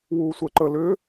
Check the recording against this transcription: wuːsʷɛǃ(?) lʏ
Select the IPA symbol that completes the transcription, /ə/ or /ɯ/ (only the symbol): ə